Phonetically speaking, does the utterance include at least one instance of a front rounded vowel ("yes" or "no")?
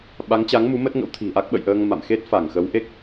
no